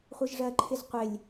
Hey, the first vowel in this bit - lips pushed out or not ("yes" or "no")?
no